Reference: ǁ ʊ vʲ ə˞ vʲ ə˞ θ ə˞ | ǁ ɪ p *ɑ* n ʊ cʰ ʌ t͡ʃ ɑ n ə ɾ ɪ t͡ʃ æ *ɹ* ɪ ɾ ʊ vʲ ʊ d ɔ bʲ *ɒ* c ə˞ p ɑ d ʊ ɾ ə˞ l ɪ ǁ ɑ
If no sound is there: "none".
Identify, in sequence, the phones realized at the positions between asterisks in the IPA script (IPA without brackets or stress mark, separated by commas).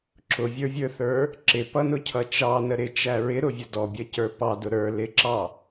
ʌ, ɹ, ʌ